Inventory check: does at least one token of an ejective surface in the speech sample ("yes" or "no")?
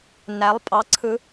yes